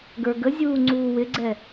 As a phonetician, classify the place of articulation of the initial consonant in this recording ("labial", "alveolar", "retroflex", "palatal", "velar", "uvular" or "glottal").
velar